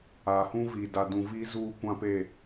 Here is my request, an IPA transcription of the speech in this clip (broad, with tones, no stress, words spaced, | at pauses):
aː˨hũ˦viː˨ da˨dũ˨ viː˦zuː˦ kʷã˦pe˦˨